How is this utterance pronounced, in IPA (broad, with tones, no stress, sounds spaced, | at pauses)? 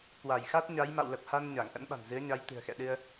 k w a˧˩ j x a˦˥ t̚ ɲ a˨˦ j m a̰˧˨ w l ə˨˩ p̚ h a˧ n ɲ a˧˩ ŋ ʔ ə̰˧˥ n ɓ a̤˨˩ n z ɨ˨˦ ə̯ ɲ a˨˦ j t̪ ɨ̤˨˩ ə̯ x ɛ̰˧˨ ɗ ɨ˧ ə̯